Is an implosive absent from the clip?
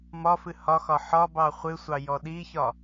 no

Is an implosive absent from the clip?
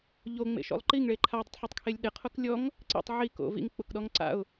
no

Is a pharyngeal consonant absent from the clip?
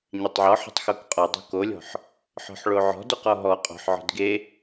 no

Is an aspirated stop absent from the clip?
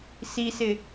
yes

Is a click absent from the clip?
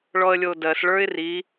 yes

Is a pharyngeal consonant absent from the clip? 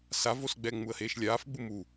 yes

